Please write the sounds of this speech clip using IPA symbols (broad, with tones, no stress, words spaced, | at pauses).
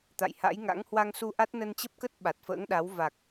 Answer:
t̪a̰˧˨jha̰˧˥jŋa̰˧˥ŋ hwa˧ŋsu˧ʔa˦˥t̚ nə˧nt͡ɕə˦˥p̚kə˦˥t̚ ɓa˨˩t̚fə̰ː˧˥ŋɗa˨˦w va˨˩k̚